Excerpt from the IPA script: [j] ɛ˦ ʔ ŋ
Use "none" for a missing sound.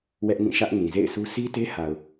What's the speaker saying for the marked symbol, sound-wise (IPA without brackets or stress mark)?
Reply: w